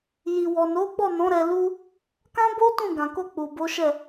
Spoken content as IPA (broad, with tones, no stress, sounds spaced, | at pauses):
j i˨ w ɔ˨ n o˨˦ ɡ͡b ɔ˦˨ n ɔ̃˨˦ ɾ ɛ˧ l u˦ | k ã˦ b o˦ t ũ˦˨ ɡ ã˨ k o˧ k͡p u˨ b o˨˦ ʃ ɛ˦˨